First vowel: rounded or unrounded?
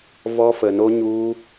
rounded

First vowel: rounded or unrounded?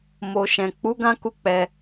rounded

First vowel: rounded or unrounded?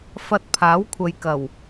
unrounded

